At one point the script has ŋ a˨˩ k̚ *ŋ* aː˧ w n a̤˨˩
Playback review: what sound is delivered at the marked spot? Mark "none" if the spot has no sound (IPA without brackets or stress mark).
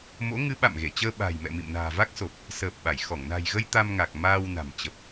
m